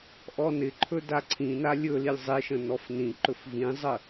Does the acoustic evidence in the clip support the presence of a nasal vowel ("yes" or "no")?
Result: yes